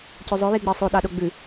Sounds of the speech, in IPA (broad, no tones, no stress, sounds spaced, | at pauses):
c ø zˤ œ j i ɡ͡b e sˤ o ɗ ɑ ɗ o ɡ͡b ʉ